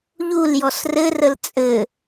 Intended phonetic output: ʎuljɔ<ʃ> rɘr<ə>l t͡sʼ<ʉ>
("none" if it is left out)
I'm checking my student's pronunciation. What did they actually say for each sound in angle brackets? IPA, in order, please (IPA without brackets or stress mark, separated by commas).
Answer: s, ə, ɘ